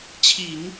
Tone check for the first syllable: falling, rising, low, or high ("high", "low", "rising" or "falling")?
low